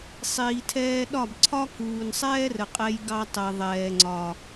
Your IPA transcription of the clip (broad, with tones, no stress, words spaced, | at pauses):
sˤiː˨tʰɛː˧ɗɒ˦˨bǀʰɒ˦ kuː˨nsˤɛː˦rə˨qʼɛ˧j ɡɑ˧tˤɛ˨ ðˤɛː˨ŋ͡ǀɒ˨